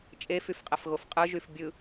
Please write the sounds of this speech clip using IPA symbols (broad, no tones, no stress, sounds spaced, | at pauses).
t͡ʃʼ e f y f qʼ ɛ f ɣ o f qʼ ɯ ʒ y f bʲ ɯ